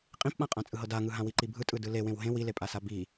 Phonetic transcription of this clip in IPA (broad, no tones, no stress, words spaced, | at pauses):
qʼĩpɓãqʼã t͡sʼɯɦɤdaŋɯ ɦãwiǃibʱɯ tʼɯdɯlewẽw ɦẽ wilepʼasa bi